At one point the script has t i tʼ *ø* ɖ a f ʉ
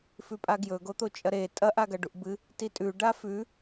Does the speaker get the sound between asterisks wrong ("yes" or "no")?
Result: yes